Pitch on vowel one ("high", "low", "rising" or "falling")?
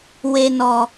low